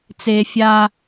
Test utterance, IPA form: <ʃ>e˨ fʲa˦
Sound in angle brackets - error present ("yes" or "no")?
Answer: yes